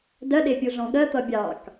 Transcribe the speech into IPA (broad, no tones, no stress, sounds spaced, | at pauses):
d ɜ ɗ e pʲ u ɮ ɔ̃ ɠ ɜ t̪ ʌ bʲ ɑ k